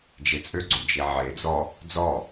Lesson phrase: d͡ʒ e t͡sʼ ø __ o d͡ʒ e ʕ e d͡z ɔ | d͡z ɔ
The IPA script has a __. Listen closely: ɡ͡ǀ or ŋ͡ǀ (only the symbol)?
ɡ͡ǀ